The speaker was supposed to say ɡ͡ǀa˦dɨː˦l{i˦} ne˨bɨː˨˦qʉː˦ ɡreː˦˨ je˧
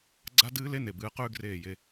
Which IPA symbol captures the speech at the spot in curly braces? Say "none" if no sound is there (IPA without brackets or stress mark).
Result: e˦